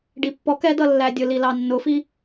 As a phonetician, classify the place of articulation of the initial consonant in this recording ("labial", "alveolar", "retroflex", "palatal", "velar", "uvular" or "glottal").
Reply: retroflex